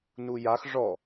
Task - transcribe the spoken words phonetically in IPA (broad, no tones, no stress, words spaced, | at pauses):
nujax ʐɔ